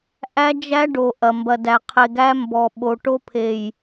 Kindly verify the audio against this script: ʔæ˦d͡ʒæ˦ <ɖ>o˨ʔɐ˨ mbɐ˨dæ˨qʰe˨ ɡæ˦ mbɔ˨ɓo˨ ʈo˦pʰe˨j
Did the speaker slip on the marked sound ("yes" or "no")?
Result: no